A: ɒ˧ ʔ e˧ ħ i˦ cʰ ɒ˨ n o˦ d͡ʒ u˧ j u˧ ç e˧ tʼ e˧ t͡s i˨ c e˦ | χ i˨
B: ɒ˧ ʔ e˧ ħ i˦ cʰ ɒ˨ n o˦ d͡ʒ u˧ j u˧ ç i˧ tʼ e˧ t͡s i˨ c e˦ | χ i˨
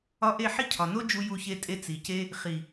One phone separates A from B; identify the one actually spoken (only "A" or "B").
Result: A